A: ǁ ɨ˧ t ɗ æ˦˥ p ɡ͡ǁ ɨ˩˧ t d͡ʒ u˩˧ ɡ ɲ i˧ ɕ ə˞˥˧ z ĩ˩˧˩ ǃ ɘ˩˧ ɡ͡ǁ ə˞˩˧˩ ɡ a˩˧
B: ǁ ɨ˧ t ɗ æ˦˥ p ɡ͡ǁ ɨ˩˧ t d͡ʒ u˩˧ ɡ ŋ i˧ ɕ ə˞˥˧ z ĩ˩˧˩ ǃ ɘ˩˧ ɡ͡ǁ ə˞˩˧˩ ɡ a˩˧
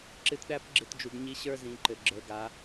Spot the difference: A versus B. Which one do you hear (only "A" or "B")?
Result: A